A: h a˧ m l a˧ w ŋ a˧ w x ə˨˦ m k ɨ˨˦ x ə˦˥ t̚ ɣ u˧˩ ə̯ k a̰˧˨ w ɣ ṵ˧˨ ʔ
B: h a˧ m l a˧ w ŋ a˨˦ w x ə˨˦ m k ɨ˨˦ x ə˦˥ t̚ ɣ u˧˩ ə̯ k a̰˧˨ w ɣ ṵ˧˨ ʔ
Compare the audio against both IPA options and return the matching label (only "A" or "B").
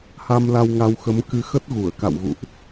A